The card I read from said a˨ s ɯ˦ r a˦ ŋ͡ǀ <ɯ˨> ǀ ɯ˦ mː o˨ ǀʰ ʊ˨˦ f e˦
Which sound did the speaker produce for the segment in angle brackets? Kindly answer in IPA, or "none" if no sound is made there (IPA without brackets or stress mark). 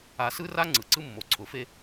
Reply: ɯ˨